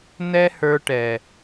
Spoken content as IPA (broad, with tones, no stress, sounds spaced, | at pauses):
n ɛ˦ h ə˞˧ ʈ ɛ˨